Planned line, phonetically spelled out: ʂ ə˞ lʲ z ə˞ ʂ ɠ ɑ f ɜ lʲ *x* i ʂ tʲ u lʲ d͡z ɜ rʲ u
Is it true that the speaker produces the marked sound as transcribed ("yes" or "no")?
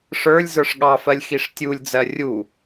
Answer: yes